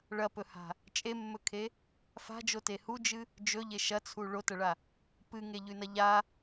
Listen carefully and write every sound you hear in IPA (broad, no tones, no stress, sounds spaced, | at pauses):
ɭ ɐ p ɵ h a̤ | t͡ʃʼ e mː ɵ kʰ e | f a̤ d͡ʒ o t e h u d͡ʒ ɨ | d͡ʒ ɵ ʎ e ʃ ɐ t͡sʰ u ɭ o t ɐ ɭ a | p ɨ ŋ e ʎ ʉ n ɐ ʎ a